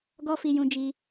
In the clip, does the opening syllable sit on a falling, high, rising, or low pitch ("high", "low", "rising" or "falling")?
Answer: high